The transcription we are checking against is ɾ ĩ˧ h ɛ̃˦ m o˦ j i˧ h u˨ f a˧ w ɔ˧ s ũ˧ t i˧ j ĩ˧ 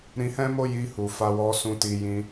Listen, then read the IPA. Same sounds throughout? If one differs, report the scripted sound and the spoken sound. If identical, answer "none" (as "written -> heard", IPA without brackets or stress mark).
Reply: none